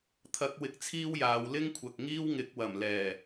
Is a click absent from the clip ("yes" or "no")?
yes